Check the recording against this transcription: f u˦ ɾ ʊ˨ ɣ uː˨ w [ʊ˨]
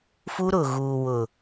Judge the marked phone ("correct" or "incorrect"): correct